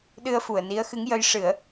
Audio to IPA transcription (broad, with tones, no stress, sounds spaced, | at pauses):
ɗ ɨ˧ ə̯ f u˨˩ ə̯ n i˧˥ ə̯ x ɨ˧˥ ŋ j ə˧˥ j ʂ ɨ˨˩˦ ə̯